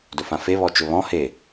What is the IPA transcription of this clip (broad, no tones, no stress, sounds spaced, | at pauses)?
d ɵ f ã f e β ɔ t͡ʃ ɵ β ɔ̃ h e